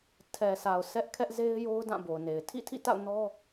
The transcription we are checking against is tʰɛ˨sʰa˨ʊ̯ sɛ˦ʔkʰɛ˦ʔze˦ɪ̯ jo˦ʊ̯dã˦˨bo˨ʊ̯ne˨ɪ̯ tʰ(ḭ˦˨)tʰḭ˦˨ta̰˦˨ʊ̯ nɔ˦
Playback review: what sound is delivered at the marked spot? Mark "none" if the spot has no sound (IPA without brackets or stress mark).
ḭ˦˨